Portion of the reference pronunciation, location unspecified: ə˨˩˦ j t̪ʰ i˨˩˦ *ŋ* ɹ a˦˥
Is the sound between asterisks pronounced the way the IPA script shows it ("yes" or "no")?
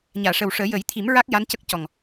no